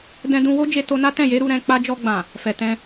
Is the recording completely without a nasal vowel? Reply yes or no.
no